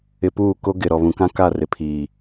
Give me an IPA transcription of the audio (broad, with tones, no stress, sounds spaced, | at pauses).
ɪ˨ p uː˦˨ k o˦ ɡ ɪ˨ ɾ ɔ˨ β ũ˨ k ã˦ k a˦˨ r ɪ˨ pʰ iː˨